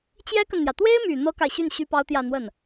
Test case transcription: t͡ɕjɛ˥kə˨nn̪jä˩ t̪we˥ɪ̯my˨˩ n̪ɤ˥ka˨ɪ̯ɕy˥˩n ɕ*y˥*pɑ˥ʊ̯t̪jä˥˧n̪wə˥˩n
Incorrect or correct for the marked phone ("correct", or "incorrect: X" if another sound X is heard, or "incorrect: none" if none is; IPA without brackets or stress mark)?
correct